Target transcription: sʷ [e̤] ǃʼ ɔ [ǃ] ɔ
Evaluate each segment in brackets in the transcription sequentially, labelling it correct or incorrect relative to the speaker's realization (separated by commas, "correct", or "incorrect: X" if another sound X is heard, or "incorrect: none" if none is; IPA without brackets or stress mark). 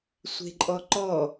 correct, correct